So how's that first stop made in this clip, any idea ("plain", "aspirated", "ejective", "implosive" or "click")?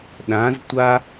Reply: implosive